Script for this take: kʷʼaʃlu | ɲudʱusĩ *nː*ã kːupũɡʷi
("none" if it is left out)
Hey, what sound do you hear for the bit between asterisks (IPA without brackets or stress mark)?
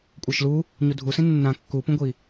nː